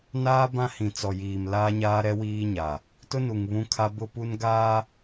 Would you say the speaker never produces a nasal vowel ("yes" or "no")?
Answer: no